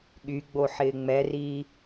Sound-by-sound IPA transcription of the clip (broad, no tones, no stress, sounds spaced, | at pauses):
ɠ y ɡ͡b o ħ ɪː ŋ͡m ɛ r iː